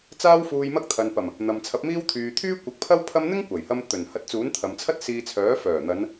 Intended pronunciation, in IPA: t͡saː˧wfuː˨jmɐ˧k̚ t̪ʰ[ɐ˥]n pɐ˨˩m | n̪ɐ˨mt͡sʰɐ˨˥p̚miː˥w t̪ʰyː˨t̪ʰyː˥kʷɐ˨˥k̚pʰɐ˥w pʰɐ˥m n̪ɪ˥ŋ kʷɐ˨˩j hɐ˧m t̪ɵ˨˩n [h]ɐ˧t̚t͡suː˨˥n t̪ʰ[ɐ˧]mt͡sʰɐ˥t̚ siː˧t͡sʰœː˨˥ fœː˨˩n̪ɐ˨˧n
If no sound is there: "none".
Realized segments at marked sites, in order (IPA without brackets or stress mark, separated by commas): ɐ˨, h, ɐ˨